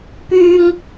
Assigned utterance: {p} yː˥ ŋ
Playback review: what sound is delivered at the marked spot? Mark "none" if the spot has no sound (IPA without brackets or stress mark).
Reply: p